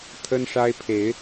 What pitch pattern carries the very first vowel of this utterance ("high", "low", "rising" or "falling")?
high